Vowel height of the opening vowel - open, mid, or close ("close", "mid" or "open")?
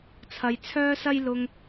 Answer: open